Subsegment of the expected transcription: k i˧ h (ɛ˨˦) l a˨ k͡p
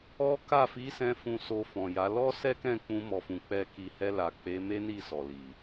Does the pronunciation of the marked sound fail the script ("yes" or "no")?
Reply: yes